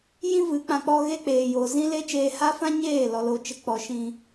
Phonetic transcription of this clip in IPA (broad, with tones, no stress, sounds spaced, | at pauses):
j ĩ˦ v ɨ˨˦ k͡p ã˨ k͡p ɔ˧ ɣ e˦ k͡p eː˨ j o˨ z ĩ˦ l e˦ t͡ʃ eː˧ h a˦ f ã˦ ɲ eː˦˨ l ɔ˨ l o˨ t͡ʃ ə˨˦ k͡p ɔ˨ ʃ ĩ˧